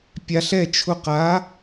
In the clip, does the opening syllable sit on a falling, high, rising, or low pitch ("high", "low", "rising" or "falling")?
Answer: rising